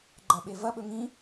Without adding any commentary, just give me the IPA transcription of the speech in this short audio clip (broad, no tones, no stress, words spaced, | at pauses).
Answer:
ɡ͡ǃɐɓevɐɓɵ ŋĩ